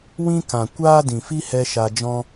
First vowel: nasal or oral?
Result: nasal